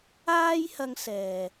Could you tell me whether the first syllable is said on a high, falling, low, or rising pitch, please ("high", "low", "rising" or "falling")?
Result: high